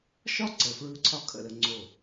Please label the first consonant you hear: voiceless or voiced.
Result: voiceless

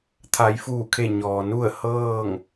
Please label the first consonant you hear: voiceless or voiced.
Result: voiceless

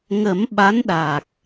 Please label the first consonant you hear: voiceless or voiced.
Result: voiced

